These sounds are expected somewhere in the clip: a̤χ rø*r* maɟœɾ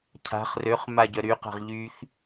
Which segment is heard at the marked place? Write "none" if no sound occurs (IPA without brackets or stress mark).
χ